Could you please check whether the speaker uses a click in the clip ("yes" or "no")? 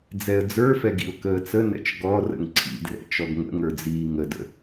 yes